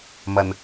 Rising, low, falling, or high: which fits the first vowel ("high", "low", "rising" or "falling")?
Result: low